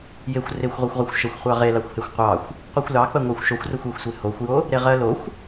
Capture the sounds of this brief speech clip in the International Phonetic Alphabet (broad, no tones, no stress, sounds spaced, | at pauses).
j e xʷ r e xʷ ʁʷ ɜ xʷ ʁ ɜ xʷ ʃ ə xʷ χʷ ɑ ʁ e l ɑ xʷ h e xʷ qʷ ɑ xʷ | qʷ ɜ xʷ l ɑ k͡p ɜ ŋʷ ɜ xʷ ʃ o xʷ r o xʷ e xʷ sʷ e h o xʷ j o | ɾ e ʁ ɜ l o xʷ